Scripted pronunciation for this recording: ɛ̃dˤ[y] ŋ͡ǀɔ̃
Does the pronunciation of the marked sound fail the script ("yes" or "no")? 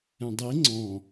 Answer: yes